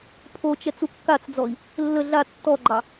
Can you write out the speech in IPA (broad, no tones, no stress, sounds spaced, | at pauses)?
pʰ o t͡ʃ ɛ t͡s u kː a t͡s d͡z ɔ i̯ | lː ə ɮ a tː ɔ ɡ͡ǃ ɑ